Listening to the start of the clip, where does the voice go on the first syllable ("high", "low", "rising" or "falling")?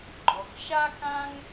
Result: low